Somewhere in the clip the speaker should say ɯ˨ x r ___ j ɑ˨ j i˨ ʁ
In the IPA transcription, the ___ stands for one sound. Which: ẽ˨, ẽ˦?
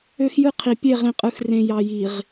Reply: ẽ˨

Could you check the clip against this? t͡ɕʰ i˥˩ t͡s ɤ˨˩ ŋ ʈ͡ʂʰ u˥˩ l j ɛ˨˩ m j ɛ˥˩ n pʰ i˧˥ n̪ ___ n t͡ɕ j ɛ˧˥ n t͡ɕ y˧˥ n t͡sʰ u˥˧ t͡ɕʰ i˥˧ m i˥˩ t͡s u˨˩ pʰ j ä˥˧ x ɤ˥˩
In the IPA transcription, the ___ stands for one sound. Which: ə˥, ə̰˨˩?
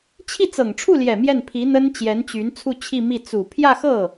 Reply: ə˥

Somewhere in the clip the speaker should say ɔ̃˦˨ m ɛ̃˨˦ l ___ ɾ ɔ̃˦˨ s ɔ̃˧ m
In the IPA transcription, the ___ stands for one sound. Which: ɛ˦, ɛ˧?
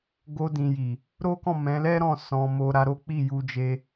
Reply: ɛ˦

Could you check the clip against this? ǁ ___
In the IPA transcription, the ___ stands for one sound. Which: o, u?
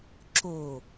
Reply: o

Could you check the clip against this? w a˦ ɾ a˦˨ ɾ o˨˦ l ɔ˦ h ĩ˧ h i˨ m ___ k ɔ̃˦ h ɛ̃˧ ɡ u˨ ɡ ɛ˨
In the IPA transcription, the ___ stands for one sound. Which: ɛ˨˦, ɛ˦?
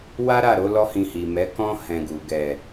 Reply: ɛ˨˦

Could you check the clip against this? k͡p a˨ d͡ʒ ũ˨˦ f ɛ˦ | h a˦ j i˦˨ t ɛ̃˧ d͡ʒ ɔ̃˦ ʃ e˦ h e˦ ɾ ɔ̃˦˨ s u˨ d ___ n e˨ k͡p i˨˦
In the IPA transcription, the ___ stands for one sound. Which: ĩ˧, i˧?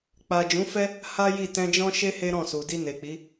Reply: i˧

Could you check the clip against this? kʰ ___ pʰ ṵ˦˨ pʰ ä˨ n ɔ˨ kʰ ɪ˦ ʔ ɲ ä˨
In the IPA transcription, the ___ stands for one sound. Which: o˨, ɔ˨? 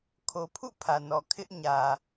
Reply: o˨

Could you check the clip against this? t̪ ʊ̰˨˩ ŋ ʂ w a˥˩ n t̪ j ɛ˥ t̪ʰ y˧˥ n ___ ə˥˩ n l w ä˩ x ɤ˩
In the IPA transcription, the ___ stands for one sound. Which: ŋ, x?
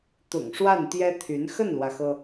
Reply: x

